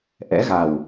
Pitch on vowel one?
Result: rising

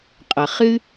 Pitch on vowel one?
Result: low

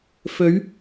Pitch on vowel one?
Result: rising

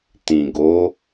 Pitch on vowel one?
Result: low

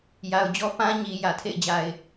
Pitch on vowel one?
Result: low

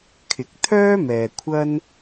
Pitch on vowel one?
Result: rising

